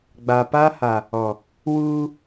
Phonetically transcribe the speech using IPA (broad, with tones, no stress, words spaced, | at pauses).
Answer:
ɡ͡ba˨pa˦ha˨ | ɔ˨ | wuː˦